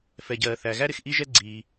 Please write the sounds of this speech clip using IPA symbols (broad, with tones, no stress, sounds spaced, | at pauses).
f ɛ˩ ɟ ɜː˩ θ æ˩ ɣ æ˥ ɾ ɪ˩ x ʔ i˥ ʒ ɛ˥ ɡ͡ǀ iː˩